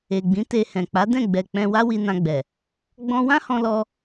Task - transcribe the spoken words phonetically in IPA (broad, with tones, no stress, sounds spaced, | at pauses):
e˨ ɡ͡b ĩ˨˦ t e˧ h ɛ̃˨ k͡p a˨˦ d ɛ̃˦˨ ɡ͡b ɛ˨ k͡p ɛ̃˧ w a˦ w i˧ n ã˧ ɡ͡b ɛ˨ | ɡ͡b ɔ̃˧ w ã˦ h ɔ̃˧ l ɔ˧